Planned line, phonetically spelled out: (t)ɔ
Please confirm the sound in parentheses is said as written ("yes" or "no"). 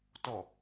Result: yes